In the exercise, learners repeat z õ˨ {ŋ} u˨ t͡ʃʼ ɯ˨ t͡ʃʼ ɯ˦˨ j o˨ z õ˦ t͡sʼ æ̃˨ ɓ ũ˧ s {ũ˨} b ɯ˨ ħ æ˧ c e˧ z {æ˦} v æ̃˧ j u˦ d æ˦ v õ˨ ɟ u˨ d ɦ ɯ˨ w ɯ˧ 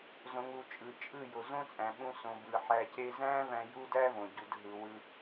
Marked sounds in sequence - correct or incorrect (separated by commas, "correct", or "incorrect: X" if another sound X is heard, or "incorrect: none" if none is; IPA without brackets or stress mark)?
correct, incorrect: õ˨, incorrect: æ̃˦